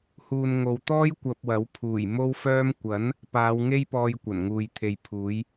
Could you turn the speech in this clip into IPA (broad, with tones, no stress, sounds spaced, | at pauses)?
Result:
h uː˨ n ŋ o˨ w t̪ ɔː˥ j kʷ ɐ˧ p̚ w ɐ˨˥ w pʰ uː˨˩ j m o˥ w f œː˥ m kʷ ɐ˨˥ n | p aː˨˧ w ŋ e˥ j p ɔː˧ j kʷ ɐ˨˩ n ŋ uː˨ j t̪ʰ e˨ j pʰ uː˨˥ j